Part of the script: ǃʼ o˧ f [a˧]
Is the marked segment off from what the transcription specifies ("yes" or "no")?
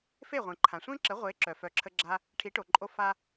no